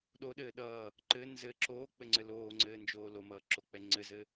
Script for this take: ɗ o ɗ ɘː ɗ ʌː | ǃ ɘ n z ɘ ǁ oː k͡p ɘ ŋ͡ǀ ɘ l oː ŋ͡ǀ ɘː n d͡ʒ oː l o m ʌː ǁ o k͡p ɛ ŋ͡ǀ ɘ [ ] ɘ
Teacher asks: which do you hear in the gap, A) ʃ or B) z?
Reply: B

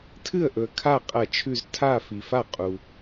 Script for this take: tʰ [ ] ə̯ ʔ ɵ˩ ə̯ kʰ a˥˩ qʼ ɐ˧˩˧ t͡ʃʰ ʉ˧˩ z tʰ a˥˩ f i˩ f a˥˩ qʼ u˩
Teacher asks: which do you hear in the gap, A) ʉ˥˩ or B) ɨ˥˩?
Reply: B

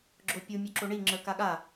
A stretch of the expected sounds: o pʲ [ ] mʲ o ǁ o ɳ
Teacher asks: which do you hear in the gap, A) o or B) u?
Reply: B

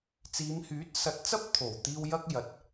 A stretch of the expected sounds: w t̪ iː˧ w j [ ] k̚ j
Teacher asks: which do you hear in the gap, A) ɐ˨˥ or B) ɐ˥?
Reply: B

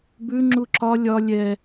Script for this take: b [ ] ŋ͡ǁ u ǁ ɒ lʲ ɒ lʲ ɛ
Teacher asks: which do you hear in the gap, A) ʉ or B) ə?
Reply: A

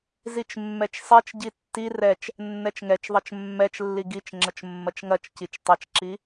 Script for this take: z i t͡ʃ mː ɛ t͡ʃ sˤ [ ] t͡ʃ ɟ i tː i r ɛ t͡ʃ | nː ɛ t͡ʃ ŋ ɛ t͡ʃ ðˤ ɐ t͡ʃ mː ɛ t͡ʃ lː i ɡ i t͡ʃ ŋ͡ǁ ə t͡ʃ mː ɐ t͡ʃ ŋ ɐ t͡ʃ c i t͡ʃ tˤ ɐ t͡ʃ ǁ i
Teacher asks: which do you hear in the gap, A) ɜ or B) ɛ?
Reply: B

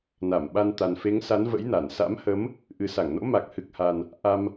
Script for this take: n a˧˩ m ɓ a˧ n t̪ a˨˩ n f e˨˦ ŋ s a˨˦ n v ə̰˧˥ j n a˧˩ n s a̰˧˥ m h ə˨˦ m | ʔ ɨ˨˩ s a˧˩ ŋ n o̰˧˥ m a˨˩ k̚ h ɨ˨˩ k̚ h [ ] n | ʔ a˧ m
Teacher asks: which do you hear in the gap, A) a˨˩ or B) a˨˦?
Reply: A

